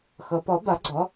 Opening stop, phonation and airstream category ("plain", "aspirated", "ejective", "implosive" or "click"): plain